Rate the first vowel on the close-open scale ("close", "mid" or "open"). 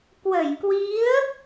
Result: mid